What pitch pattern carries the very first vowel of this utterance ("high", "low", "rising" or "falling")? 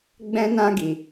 high